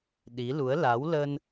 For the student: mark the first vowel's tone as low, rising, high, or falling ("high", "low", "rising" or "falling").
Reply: rising